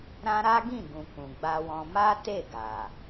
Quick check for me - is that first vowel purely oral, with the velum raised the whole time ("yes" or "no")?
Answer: no